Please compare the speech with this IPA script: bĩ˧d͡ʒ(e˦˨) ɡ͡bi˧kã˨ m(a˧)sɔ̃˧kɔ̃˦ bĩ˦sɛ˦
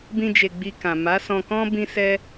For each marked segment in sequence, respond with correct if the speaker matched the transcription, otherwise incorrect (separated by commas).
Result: incorrect, incorrect